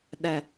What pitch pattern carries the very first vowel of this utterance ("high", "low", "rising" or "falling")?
low